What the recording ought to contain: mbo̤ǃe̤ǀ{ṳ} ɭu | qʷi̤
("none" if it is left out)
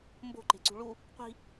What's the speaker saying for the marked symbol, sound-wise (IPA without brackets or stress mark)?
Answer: ṳ